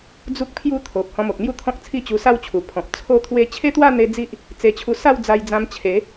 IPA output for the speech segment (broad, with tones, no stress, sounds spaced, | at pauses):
d͡z u˦ k̚ pʰ j u˦ t̪ʰ o˨ p̚ h ɔ̃˧ m o˨ k̚ n̪ j u˥˧ t̪ʰ ɔ̃˦ k̚ t͡sʰ i˥˧ t͡ɕ u˧ s a˥˧ w t͡ɕʰ u˨˩ pʰ ɔ̃˨ p̚ t͡sʰ o˥˧ t̪ʰ w e˥˧ t͡ɕʰ e˦ t̪ w a˥˧ n̪ e˧ d͡z i˦ ʔ | t͡s e˧ t͡ɕʰ u˧ s a˥˧ w d͡z a˧ j d͡z ã˧ m t͡ɕʰ e˨˦